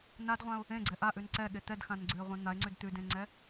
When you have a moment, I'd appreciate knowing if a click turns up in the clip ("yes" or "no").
yes